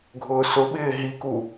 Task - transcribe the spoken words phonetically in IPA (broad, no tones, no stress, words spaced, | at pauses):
ɡʱʊːsʊɓɪː ɦiku